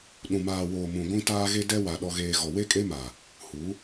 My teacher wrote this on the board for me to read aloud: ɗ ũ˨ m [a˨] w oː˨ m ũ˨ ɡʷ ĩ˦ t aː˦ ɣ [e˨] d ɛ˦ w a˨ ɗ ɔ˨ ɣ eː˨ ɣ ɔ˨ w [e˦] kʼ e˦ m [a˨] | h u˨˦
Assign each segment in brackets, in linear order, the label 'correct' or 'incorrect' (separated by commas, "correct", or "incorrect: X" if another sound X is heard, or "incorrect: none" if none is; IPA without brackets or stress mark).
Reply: incorrect: aː˨, incorrect: e˦, correct, correct